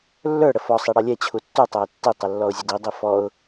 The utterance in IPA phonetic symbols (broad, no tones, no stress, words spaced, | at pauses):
lːə˞ ɽəfɔ sˤiɽʌlʲɛ t͡ɕʰutːu tˤæɪ̯tːi tˤəlːɔʊ̯zʲədi dˤifɔʊ̯